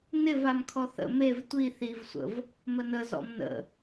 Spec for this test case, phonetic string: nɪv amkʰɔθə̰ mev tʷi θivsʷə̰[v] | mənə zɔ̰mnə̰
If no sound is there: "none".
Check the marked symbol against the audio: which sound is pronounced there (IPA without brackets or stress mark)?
v